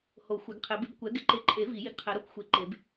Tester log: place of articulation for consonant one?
glottal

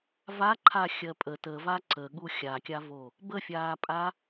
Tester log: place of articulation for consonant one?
labial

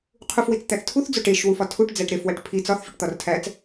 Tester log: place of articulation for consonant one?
uvular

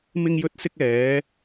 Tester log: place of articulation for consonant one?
labial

